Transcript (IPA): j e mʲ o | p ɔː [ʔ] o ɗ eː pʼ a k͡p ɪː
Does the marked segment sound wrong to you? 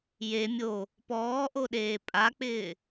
no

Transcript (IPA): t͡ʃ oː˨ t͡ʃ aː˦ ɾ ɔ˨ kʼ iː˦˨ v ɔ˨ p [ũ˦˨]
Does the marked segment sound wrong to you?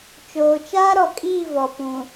yes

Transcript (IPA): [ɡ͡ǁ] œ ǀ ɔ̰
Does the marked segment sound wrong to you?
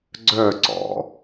yes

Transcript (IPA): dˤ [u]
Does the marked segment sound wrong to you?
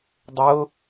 yes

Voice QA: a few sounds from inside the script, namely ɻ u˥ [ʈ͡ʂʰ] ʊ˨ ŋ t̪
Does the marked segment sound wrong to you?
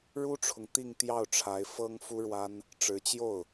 no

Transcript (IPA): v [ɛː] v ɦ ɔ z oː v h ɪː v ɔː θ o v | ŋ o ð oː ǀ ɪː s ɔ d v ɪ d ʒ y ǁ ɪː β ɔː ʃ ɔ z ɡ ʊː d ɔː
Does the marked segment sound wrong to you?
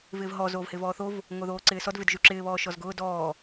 yes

